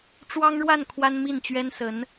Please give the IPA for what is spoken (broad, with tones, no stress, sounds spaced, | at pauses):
ʈ͡ʂ w ɑ˥ ŋ ɻ w a˥˩ n kʰ w a˥ n m i˥˩ n t͡ɕ ɥ ɛ˥ n s ə˧˥ n